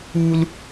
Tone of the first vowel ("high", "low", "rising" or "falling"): high